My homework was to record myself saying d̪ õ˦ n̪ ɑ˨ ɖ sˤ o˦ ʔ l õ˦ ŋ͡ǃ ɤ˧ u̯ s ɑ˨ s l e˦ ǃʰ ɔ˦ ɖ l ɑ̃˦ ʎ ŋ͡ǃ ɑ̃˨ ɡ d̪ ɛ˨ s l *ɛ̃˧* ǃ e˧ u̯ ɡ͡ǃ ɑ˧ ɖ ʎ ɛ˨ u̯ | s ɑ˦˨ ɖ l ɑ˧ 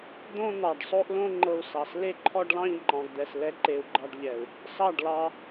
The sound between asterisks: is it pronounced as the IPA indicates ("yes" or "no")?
no